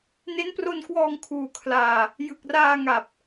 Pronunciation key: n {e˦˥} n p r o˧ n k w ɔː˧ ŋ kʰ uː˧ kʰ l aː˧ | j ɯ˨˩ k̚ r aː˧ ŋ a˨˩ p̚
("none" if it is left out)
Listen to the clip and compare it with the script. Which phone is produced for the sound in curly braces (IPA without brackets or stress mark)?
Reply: e˦˥